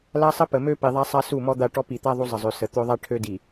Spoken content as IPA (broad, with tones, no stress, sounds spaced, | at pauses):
l a˦ sˤ ə˦ p ə˨ m ø˦ p i˨ ðˤ a˦ sˤ a˦ s u˦˨ m ɔ˦ d̪ a˦˨ ʈ ɔ˦ p i˨ t̪ a˦ ðˤ u˦ zˤ ə˨ zˤ ø˨ s ə˨ t̪ ø˦ ðˤ a˦ ʈʰ ø˦ d i˨